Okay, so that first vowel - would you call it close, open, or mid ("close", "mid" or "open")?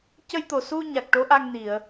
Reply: mid